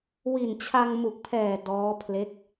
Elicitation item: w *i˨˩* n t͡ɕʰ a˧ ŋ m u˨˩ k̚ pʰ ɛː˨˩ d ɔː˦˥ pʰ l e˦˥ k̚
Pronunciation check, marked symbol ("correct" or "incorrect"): correct